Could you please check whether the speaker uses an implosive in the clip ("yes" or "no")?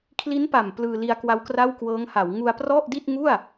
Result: no